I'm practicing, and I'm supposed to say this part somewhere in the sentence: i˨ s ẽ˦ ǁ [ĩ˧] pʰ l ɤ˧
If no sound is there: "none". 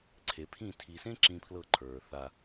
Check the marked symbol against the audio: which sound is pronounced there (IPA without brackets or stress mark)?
ĩ˧